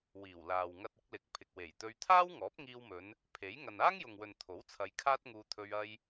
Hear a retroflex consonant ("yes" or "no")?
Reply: no